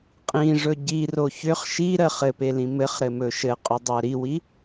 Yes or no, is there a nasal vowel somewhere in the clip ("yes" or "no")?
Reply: yes